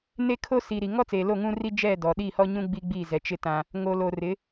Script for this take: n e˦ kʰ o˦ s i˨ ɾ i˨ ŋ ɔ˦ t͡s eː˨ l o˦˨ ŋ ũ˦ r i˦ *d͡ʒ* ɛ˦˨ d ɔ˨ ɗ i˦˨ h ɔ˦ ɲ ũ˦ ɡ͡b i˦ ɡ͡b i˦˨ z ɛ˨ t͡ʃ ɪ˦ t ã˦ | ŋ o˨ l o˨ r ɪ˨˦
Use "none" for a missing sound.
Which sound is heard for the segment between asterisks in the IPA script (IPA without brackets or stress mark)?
d͡ʒ